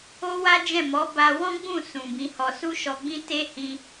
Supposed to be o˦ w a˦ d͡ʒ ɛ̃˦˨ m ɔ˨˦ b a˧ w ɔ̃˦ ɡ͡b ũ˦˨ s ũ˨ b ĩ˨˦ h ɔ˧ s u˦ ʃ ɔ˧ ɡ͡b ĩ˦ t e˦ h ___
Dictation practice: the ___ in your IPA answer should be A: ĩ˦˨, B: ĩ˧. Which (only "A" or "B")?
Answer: B